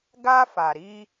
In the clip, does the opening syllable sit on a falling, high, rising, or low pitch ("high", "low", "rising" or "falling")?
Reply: high